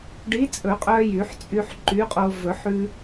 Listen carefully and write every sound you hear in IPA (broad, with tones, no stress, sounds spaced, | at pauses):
ɖ i˨˥ t͡sʼ ɵ˨˩˦ qʼ œ˧ j y˨˩˦ ħ t͡sʼ y˧ ħ ǃ y˨˥ qʼ o˧ v ɵ˨˩˦ ħ ʉ˧